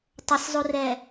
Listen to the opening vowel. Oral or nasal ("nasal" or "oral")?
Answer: oral